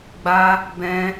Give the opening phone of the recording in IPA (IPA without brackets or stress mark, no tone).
ɡ͡b